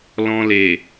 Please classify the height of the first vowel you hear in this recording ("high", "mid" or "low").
mid